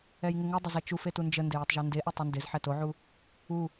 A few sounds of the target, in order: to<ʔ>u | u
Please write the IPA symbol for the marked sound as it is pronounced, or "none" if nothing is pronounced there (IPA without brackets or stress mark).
ʕ